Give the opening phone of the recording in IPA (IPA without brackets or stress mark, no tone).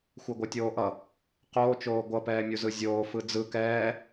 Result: xʷ